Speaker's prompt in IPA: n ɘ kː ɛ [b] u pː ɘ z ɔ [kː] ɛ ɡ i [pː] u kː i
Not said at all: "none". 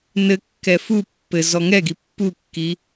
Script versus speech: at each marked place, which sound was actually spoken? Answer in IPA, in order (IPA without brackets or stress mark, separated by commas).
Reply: f, ŋ, pː